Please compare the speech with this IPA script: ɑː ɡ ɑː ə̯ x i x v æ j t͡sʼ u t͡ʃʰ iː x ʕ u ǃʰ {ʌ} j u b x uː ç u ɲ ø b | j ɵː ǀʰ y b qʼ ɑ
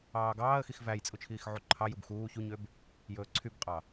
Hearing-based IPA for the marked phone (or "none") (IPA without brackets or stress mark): ɑ